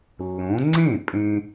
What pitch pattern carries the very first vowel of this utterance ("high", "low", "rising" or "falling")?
rising